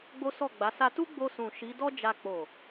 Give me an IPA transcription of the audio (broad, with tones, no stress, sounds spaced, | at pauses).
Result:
ɡ͡b o˦ s ɔ˦˨ ɡ͡b a˨˦ s a˧ t u˦ ɡ͡b o˧ s ũ˨ ʃ i˨˦ d ɔ˦ d͡ʒ a˧ k͡p o˨